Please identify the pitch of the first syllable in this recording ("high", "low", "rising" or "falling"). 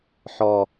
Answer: high